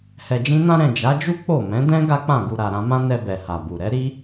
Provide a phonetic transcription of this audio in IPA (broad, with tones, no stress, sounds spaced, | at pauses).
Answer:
h ɛ˨ d͡ʒ ĩ˧ n ã˧ ɾ ɛ̃˨ d͡ʒ a˨˦ d͡ʒ u˦ k͡p o˦˨ m ɛ̃˨˦ d ɛ̃˦ ɡ a˦ k͡p ã˦˨ ɡ u˧ ɾ a˨ ɾ ã˧ m ã˦ n ɛ˧ b ɛ˨ h a˨ b u˨ ɾ ɛ˨˦ ɾ i˦